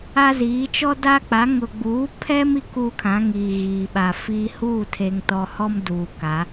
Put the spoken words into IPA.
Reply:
a˦ z iː˨˦ t͡ʃ ɔ˦ d a˦ k͡p a˨˦ ŋ ʊ˨ ɡ͡b uː˨˦ pʰ ɛ˦ m i˦ k uː˦ kʰ ã˨˦ ŋ iː˨ ɣ iː˨ ɓ a˨ f iː˦ h uː˦˨ tʰ e˨ ŋ t ɔ˨ h ɔ˦ m d uː˨ k a˨˦

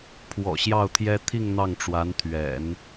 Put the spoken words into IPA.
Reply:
pʰ w ɔ̰˨˩ ɕ j ɑ˥˩ ʊ̯ t̪ʰ j ɛ˥ t̪ʰ i˥˧ ŋ n̪ ɑ˥˩ ŋ ʈ͡ʂ w a˧˥ n t̪ʰ ɥ ɛ̰˨˩˦ n

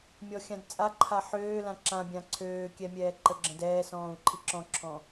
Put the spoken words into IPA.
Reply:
mʲ ɔ xʲ ã d t͡sʼ a ǃʰ a ħ øː l ã ǁ ã bʲ ã ǀʰ øː kʲ ɛ mʲ ɛː ǃ ə ɡ͡ǁ ə̃ d ɛː s ɔ̃ː u̯ ǃʰ i ǁ ɔ̃ ǁʰ ɔ̃

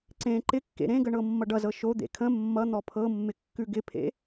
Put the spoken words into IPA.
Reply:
ǀ ẽ ǃ ɪ kː ḛ ɾ ẽ ɡ ə ɳ ɤ mː ʌ ɖ ʌ z ɤ ʃ o d̪ ḛ kʰ ə̃ mː ʌ n̪ ɔ pʰ ɤ mː ɪ kː ʉ ɡ ɪ pʰ ḛ

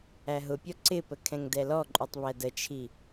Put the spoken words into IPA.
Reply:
æ ɦ ʊ pʲ ɔ ǀ ɪ p ə kʰ ɛ̃ ŋ d ɛ l ɔ ǃʼ u tˤ β æ d ə t͡ʃʰ i

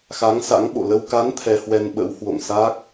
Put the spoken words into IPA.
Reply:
x a˨˦ ŋ s a̰˧˥ ŋ ɓ o̰˧˨ l ə˧ w k a˨˦ n t̪ʰ ɛ˧ h w ɛ˧ n ɓ ə̰˧˥ w h w o̰˧˨ ŋ s a˦˥ k̚

